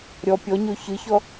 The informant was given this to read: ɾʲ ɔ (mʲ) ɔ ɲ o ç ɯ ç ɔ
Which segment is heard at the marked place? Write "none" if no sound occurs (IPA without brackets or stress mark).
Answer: pʲ